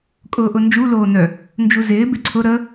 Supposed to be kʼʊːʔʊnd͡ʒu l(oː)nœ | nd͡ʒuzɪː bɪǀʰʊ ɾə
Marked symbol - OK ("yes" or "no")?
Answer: yes